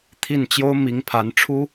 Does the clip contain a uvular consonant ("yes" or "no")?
no